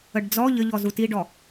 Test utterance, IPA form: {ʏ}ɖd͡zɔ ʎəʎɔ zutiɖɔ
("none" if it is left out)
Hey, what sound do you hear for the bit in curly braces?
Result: ə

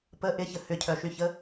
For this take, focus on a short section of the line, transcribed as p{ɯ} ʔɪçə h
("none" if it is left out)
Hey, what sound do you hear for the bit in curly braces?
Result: ə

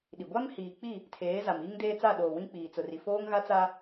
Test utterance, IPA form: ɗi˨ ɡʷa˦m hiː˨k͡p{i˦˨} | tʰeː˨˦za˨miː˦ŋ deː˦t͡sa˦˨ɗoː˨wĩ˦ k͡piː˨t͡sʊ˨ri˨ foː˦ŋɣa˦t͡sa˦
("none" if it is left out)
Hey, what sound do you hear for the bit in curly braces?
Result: i˦˨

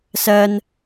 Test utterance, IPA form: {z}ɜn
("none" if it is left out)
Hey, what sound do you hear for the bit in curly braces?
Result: s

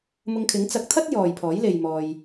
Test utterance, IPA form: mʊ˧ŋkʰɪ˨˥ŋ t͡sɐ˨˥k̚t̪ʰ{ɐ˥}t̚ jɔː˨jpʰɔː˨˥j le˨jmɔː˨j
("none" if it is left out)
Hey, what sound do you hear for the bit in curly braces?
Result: ɐ˥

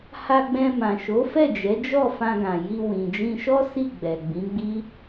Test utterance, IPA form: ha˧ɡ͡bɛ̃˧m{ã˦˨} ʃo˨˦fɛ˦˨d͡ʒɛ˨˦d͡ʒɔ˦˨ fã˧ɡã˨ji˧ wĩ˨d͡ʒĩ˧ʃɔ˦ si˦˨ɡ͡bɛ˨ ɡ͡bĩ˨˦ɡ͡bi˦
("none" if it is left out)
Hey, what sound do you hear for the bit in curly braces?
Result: ã˨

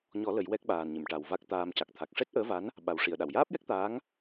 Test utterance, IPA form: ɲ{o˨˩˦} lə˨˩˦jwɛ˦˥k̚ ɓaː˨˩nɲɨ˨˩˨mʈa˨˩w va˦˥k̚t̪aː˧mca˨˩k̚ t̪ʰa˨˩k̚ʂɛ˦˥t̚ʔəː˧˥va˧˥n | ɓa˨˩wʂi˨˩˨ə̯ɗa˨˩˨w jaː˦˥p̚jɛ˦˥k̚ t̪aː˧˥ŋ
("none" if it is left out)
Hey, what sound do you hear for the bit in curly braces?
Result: ɔ˨˩˦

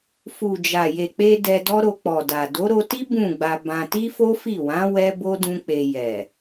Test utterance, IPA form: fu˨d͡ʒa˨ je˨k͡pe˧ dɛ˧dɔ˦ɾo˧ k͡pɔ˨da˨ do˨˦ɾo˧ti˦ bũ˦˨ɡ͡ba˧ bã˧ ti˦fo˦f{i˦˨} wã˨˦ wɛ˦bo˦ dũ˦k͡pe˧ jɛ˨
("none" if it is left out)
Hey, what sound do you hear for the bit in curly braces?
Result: i˦˨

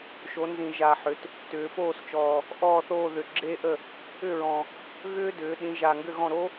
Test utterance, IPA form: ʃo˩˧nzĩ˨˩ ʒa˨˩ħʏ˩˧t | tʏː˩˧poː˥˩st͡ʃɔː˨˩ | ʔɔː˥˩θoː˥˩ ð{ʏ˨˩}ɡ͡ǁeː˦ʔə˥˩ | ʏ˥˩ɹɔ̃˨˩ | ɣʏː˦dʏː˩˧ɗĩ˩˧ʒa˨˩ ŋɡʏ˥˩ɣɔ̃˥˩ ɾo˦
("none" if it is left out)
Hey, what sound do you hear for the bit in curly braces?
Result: ʏ˨˩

